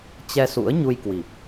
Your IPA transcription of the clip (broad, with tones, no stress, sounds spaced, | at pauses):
t͡ɕ ɛ˧ s ṵ˧˥ ə̯ ɲ u˧ j k w i˨˩ p̚